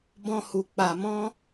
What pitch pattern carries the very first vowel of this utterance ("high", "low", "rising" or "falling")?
high